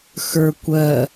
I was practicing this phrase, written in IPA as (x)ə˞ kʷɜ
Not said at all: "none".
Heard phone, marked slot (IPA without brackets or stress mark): x